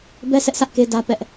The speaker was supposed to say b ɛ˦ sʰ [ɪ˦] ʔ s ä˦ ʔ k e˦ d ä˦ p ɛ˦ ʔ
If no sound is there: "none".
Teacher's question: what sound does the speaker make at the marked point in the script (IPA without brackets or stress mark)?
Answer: ɛ˦